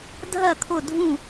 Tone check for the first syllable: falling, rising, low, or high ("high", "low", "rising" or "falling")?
falling